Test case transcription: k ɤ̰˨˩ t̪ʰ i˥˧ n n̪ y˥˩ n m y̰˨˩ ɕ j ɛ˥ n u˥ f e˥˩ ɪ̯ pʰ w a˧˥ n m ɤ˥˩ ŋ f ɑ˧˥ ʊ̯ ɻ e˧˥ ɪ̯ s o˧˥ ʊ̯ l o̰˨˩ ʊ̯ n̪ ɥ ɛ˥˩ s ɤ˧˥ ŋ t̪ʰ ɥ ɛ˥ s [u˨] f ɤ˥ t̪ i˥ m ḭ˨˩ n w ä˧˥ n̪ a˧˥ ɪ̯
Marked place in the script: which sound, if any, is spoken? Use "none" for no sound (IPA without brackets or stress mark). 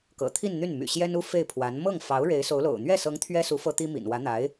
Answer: u˧˥